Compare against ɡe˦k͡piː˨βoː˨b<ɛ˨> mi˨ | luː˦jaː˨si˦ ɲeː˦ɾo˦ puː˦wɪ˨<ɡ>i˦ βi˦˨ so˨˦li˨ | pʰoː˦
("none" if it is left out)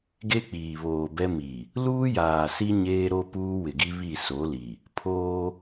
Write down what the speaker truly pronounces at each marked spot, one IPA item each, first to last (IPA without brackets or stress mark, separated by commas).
ɛ˦, ɡ